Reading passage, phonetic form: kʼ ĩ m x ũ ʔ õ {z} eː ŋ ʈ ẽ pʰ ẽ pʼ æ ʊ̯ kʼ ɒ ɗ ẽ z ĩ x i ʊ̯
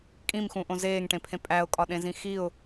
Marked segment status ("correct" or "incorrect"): correct